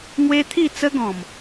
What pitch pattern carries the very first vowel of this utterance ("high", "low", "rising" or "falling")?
high